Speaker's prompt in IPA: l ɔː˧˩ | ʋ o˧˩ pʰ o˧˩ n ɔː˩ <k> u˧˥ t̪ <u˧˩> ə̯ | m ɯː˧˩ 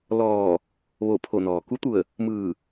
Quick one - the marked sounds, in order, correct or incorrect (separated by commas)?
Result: correct, correct